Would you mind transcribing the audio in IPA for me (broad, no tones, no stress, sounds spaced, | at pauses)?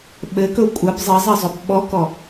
ɓ ɘ k ɵ kʷʼ ə b zˤ ɘ zˤ ɘ zˤ ɵ b ɓ ɔ k ɔ